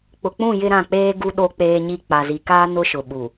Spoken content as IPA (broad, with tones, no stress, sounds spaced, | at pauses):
k͡p ʊ˨ k͡p ũ˦˨ j ɪ˦ ɾ ã˦˨ k͡p eː˦ ɡ u˦ ɗ o˦ k͡p eː˦ ɲ i˦ k͡p a˨ z i˨ k aː˦ n ʊ˦ ʃ ʊ˨ ɓ u˨